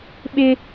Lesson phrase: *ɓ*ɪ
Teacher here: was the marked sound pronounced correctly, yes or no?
yes